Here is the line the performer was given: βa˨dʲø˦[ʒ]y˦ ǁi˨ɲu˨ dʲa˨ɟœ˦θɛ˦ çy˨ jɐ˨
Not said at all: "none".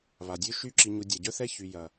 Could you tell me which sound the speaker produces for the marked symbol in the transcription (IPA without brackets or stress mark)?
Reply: ʃ